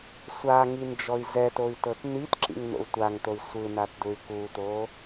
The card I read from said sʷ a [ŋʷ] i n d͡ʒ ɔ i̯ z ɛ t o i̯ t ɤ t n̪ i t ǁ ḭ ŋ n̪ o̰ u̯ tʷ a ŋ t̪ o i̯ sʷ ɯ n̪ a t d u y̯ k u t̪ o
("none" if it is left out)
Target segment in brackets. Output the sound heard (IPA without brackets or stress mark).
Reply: ŋ